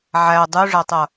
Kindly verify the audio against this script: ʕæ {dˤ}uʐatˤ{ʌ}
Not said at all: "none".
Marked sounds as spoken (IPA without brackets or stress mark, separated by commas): dˤ, ʌ